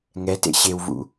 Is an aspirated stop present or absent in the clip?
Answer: absent